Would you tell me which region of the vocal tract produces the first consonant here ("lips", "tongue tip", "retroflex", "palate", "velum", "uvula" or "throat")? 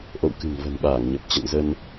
throat